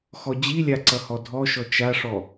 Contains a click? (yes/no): yes